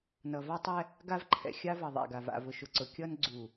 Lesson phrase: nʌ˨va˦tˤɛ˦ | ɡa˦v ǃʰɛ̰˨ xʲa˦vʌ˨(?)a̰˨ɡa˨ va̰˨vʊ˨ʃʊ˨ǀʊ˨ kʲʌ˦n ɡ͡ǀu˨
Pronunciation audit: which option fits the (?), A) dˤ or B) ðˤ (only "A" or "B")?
B